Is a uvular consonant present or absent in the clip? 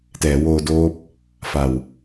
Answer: absent